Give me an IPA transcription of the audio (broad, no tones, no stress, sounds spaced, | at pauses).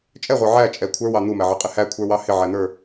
t͡ʃʼ ɛ ʁʷ ə˞ ʕ æ t͡ʃʼ ɛ kʷʰ ə˞ w ɑ n̪ u m æ ʕ ʌ qʼ ɪ h æ kʷʰ ə˞ w ɑ h ɪ ʕ æ n̪ ə˞